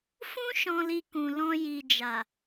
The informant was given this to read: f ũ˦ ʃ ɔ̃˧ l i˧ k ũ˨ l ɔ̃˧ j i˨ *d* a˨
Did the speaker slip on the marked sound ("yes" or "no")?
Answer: yes